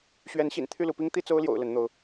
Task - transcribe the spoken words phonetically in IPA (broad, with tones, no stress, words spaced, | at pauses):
ɕɥɛ˨˦nɕḭ˨˩n t̪ʰy˥˨lu˨˦pi˦ŋ t̪i˥˨t͡so˦ʊ̯ ljo̰˨˩ʊ̯ lə˨˦nn̪o˨˦ʊ̯